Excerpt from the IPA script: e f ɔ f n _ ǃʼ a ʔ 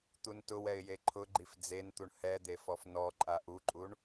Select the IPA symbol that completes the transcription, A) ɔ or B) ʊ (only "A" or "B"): A